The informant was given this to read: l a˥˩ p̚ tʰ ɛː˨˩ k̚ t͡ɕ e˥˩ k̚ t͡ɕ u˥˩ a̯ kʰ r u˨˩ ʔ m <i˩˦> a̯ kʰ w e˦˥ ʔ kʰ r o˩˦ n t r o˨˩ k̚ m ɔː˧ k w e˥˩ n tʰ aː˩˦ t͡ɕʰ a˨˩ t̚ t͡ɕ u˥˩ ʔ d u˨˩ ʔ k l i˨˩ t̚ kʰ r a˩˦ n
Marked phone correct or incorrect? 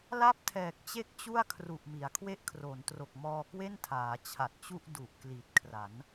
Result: correct